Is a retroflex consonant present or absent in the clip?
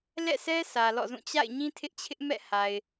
absent